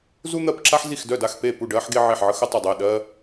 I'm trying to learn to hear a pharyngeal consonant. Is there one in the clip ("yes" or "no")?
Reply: yes